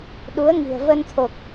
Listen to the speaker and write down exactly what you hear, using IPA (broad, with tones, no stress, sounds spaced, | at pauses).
ɗ u˨˦ ə̯ ŋ i̤˨˩ ə̯ v ə˧ n t̪ʰ o˨˩ k̚